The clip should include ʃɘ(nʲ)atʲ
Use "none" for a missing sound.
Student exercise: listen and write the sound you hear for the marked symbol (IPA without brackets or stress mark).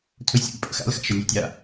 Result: nʲ